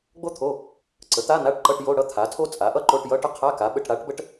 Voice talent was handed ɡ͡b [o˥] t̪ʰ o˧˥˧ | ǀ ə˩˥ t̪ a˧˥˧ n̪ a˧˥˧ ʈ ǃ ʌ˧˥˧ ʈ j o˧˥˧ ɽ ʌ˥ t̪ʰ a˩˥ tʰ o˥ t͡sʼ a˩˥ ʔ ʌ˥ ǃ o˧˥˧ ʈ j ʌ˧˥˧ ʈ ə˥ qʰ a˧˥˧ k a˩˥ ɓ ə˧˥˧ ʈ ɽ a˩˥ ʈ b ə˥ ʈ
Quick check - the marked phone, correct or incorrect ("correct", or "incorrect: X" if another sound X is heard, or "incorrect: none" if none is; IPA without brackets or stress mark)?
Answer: correct